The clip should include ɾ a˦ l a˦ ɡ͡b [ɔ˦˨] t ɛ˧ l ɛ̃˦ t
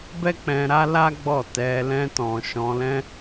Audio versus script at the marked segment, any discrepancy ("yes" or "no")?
no